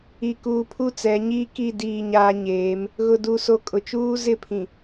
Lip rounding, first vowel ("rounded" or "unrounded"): unrounded